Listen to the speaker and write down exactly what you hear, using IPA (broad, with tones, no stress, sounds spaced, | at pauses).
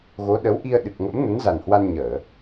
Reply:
ɣ o˨˦ ɗ ə˨˦ w ʔ i˧ ə̯ ɗ ɨ˨˩ k̚ ŋ ə̰˧˥ m n ə˨˦ n z a˨˩ n h w a˧ n ɲ əː˧˩˨